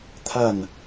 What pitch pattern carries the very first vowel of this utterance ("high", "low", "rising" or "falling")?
falling